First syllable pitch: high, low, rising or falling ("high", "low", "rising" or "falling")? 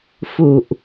low